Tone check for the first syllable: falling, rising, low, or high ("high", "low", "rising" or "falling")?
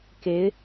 rising